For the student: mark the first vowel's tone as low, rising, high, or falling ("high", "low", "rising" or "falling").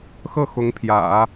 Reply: falling